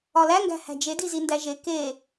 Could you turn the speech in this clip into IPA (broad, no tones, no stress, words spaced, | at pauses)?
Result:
ɒlæŋɡæ̤ hæ̤d͡ʒedi zindæʒe ke